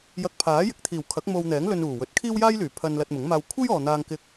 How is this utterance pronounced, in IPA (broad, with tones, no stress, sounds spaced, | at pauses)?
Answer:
j ɐ˧ k̚ pʰ aː˨˥ j ɪ˨ k̚ t̪ʰ iː˨˩ w kʰ ɐ˨˥ k̚ m o˧ w n̪ ɛː˨˥ ŋ l ɵ˧ n uː˨˩ w ɵ˨˥ t̚ kʰ iː˥ w j aː˥ j l yː˨˩ pʰ ɐ˧ n l ɐ˧ t̚ m ʊ˨˥ ŋ m aː˧ w kʷʰ e˥ j ɔː˨ n̪ aː˧ ŋ k ɪ˧ k̚